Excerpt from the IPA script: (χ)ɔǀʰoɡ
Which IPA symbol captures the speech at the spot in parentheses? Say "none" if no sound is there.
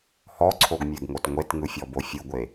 h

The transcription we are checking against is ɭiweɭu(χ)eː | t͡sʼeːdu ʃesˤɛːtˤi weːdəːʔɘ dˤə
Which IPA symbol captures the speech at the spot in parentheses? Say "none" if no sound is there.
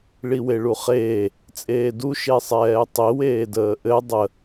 χ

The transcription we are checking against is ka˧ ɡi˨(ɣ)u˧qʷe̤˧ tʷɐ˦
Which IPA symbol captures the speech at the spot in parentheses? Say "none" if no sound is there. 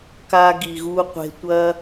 ɣ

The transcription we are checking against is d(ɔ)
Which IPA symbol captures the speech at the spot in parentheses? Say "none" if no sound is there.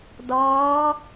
ɔ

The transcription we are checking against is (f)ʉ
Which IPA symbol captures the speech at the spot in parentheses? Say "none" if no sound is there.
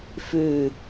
f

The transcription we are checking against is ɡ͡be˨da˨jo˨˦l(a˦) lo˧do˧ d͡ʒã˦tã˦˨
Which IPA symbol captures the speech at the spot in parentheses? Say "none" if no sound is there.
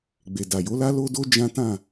a˦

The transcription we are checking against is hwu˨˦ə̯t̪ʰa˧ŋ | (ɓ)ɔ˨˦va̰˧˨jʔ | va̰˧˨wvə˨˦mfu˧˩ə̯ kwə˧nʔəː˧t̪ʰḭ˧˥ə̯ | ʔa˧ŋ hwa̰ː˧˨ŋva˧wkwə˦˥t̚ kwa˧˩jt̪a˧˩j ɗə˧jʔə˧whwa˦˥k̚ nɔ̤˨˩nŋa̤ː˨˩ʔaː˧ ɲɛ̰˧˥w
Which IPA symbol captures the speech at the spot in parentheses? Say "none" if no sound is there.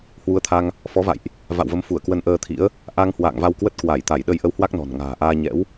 f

